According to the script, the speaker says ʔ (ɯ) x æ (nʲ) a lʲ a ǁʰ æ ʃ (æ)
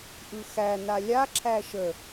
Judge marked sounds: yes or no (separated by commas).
yes, no, no